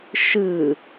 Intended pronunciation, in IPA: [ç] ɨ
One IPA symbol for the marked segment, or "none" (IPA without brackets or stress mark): ʃ